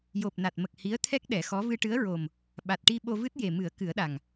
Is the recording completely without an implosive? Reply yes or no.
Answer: no